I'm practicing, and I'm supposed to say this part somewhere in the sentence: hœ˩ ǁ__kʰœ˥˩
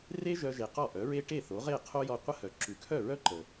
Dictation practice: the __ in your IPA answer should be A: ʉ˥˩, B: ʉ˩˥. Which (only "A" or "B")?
B